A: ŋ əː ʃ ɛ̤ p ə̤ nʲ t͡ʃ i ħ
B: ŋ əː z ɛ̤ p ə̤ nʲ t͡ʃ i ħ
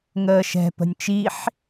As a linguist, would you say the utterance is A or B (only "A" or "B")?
A